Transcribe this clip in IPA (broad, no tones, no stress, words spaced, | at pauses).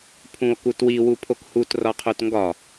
pʰũo̯kutwi wupʰokhut rɒqʰotŋɡɒ